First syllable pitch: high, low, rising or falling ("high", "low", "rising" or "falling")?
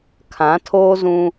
rising